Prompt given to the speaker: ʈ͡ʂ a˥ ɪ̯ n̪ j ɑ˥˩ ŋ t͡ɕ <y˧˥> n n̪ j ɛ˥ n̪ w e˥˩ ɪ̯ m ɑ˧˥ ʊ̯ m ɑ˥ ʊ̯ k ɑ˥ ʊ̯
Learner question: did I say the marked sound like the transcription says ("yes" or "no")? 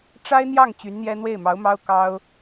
yes